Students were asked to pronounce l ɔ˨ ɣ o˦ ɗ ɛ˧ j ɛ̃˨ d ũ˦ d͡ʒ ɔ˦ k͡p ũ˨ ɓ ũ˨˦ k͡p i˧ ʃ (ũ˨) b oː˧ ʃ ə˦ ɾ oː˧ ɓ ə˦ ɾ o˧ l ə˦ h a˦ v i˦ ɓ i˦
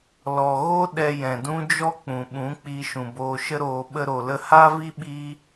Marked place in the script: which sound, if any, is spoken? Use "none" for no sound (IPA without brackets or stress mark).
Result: ũ˨